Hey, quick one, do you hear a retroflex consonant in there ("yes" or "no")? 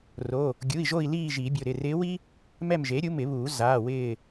no